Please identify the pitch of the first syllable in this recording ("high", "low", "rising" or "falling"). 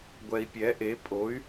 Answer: low